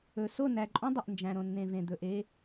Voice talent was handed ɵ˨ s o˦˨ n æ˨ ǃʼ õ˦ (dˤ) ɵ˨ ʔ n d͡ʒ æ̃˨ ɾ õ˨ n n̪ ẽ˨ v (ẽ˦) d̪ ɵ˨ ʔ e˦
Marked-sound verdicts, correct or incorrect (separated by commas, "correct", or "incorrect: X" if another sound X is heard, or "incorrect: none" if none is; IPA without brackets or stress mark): correct, incorrect: ẽ˨